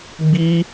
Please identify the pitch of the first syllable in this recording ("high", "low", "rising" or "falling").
high